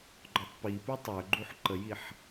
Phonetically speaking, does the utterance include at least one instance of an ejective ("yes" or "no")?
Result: no